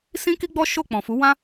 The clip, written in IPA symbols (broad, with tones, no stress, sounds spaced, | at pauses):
s ĩ˦ k i˦ ɡ͡b ɔ˦ ʃ o˦˨ k͡p ɔ̃˨ f u˨˦ w ã˦